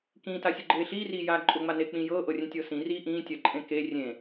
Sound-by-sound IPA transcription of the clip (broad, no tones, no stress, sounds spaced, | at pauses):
k ĩː t a sʲ ʊ ɡ͡ǃ eː ɬ iː r iː j aː ǃʼ ʊ ŋ͡m a n e k͡p ĩː j ɤː ʔ ɤ rʲ ẽ tʲ ɤː s ĩ r iː ʔ ĩː tʲ ɜ ǃʼ ẽ k e rʲ ẽ